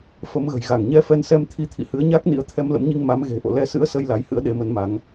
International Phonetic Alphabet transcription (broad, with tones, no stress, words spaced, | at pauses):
fə˨˦mɣə̤˨˩jɣa˧˩ŋ ɲɛ˧fɛ˧nsɛ˧m t̪ʰi˨˦t̪ʰḭ˧˨ hɨ˨˦ə̯ɲa˦˥k̚nḭ˧˥ə̯ t̪ʰɛ˧mlə̰˧˥mɲi˧ŋ ma˨˦mɣe̤˨˩ ʔo̰˧˨lɛ˧sɨ̰˧˥ə̯sə˧j la˨˦jhɨ̰˧˥ə̯ɗe˨˦ mə˨˦nma˨˦ŋ